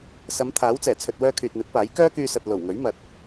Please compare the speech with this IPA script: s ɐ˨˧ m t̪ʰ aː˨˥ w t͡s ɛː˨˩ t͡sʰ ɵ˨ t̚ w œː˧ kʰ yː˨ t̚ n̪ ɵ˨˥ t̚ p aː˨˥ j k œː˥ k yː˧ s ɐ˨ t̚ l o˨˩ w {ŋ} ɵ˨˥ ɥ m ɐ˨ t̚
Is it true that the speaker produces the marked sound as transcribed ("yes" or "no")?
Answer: yes